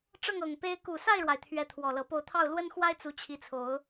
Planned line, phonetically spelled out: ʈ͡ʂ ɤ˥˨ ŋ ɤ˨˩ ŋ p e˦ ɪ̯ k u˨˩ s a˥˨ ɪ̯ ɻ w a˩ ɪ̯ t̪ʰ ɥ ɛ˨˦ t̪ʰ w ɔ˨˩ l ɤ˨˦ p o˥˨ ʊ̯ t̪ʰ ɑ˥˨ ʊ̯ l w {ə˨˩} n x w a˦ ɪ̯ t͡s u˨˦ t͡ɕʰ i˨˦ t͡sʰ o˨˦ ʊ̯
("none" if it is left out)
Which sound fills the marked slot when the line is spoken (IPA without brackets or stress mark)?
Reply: ə˦